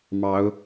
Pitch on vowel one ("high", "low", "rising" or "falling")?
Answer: rising